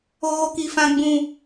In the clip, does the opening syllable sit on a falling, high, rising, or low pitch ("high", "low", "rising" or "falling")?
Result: high